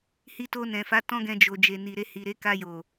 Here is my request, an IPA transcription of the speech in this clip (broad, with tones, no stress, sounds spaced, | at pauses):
h i˧ t o˧ n ɛ̃˨ f a˨˦ t ɔ̃˦ ɡ ɛ̃˧ d͡ʒ o˨ d͡ʒ e˨ n i˨ ɾ e˧ h i˨ ɾ e˨˦ k a˧ j o˨